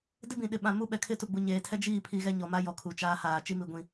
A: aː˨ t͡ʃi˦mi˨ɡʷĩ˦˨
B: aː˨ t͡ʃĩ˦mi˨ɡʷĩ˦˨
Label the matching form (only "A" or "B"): A